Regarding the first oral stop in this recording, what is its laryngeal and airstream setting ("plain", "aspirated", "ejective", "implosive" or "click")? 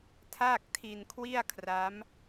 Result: aspirated